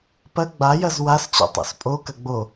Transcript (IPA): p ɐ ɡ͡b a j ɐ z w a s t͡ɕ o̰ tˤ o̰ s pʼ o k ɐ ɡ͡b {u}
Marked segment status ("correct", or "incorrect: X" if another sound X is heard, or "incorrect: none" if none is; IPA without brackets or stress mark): incorrect: o